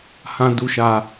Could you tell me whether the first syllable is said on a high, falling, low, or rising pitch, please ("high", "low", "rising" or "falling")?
high